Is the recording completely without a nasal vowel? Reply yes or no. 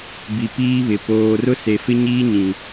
no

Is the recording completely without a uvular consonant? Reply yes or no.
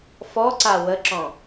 yes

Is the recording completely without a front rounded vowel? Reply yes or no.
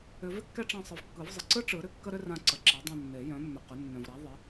no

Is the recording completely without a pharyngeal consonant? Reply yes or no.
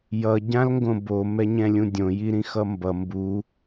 yes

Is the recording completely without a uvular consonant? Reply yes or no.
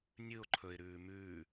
yes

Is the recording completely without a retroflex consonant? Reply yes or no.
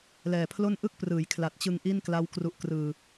yes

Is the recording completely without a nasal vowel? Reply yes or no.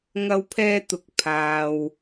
yes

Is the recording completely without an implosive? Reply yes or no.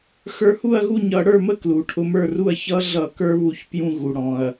yes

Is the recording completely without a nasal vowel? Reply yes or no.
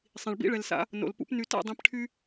no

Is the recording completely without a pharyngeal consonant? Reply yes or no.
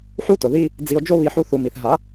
no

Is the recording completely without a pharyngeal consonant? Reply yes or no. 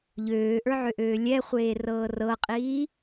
no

